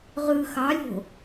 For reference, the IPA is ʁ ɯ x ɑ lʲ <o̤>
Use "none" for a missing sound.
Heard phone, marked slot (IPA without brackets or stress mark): o̤